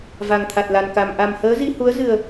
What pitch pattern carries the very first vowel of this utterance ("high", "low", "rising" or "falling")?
low